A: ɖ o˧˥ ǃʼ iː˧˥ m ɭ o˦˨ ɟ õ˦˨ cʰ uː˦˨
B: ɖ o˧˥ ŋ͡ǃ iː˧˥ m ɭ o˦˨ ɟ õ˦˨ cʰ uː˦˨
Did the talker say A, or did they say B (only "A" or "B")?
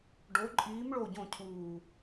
A